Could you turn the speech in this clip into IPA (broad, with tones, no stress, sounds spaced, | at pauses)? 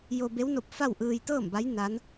j o˧ b e˧˥ w n o˧ p̚ f a˥˨ w ʔ ɯː˧ j t̪ ɤː˥˨ m b a˧˥ j n a˧˥ n